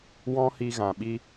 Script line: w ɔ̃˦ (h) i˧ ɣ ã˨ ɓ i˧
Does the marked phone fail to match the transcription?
no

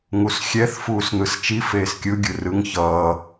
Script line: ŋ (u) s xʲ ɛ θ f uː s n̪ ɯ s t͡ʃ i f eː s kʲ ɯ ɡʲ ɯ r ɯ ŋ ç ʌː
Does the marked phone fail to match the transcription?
no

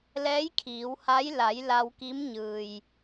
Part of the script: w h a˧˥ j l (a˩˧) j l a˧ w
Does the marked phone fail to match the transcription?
no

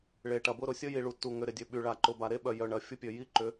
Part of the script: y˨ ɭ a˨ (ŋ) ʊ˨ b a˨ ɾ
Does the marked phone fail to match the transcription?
yes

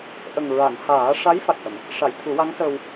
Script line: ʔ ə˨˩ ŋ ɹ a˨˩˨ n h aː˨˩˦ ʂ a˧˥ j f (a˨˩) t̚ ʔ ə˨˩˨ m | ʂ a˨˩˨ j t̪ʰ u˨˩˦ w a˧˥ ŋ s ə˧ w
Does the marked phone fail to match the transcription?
no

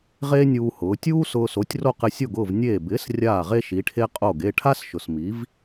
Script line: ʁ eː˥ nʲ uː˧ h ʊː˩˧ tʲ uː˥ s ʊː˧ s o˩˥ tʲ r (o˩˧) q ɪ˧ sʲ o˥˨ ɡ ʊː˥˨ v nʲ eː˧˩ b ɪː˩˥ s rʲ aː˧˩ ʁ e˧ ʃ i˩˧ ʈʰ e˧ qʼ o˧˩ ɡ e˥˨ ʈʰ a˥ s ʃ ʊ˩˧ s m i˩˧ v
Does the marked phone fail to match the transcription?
yes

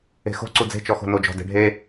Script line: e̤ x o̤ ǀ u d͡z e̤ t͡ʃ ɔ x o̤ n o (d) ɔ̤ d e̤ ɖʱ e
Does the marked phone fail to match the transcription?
yes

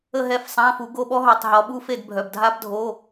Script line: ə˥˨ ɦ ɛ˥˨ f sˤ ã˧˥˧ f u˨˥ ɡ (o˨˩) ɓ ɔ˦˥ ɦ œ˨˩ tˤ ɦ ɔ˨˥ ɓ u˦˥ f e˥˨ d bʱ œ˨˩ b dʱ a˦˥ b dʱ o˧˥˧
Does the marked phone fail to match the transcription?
yes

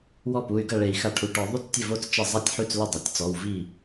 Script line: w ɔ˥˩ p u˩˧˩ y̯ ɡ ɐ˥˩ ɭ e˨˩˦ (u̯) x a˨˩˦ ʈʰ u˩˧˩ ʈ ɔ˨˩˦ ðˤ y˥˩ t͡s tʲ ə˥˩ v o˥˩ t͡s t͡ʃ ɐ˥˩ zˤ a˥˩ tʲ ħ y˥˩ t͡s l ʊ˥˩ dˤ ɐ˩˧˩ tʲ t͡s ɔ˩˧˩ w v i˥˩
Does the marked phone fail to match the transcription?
yes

